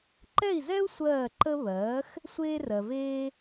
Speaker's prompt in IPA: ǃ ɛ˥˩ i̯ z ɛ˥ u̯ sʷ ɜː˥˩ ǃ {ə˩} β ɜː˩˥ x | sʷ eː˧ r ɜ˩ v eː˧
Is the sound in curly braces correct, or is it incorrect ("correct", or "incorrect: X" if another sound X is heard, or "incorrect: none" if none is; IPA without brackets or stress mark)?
incorrect: ə˥